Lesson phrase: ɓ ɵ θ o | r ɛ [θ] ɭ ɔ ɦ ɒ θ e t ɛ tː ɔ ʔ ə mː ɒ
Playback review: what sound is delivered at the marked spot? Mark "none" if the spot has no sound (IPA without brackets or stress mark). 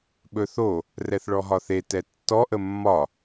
θ